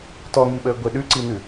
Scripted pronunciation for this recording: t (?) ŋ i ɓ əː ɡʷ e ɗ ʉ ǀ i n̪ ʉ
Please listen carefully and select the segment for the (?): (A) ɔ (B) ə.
A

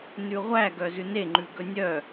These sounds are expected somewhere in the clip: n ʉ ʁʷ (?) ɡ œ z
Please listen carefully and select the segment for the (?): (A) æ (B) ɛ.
A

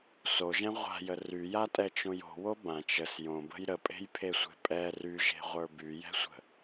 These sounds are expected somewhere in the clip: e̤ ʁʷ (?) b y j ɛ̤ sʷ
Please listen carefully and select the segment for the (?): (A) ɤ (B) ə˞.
B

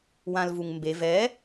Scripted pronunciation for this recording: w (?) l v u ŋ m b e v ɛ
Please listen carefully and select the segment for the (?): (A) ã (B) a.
A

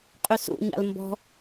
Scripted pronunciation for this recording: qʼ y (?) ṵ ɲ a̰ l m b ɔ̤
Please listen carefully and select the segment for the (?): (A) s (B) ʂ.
A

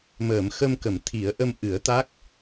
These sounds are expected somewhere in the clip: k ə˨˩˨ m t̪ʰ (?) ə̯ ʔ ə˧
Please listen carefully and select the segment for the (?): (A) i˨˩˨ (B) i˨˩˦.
B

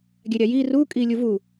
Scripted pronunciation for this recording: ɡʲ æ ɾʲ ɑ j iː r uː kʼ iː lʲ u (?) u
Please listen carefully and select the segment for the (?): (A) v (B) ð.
A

